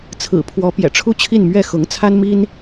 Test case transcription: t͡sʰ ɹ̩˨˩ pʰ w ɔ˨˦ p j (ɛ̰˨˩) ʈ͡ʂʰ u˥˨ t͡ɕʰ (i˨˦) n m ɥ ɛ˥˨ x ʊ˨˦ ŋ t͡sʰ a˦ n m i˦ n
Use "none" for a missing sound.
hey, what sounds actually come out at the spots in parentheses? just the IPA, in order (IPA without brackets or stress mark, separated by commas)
ɛ̰˨˩, i˥˨